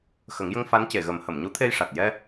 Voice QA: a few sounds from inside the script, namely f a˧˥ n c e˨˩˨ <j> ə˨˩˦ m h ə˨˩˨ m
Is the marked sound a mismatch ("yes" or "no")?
yes